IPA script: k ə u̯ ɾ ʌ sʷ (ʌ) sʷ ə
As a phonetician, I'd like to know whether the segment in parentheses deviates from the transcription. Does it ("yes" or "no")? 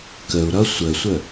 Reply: yes